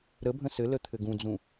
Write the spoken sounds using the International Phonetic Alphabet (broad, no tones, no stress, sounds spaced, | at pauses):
ɾ ə bʱ ə̃ s ɘ l ə t̪ʰ ɘ ɡ ũ d͡z ũ